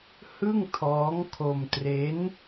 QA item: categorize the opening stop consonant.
aspirated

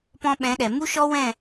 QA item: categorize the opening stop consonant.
plain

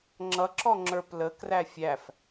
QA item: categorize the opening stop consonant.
click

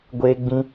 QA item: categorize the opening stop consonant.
plain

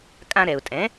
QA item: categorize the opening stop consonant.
ejective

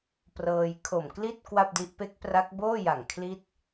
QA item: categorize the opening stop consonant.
plain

